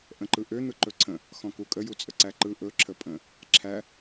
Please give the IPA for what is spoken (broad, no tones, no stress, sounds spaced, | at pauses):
ʔ ə̃ ǃ ɯ ʔ ø n̪ ɯ ǃ ɵ ǀʰ ə̃ | x ɔ̃ k u kʼ ə j u t͡sʼ ə ǀ æ ǃ ɯ ʔ ɵ ǁʰ ə pʼ ə̃ | ǁʰ æ